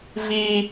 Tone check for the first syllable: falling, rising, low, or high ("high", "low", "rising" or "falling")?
high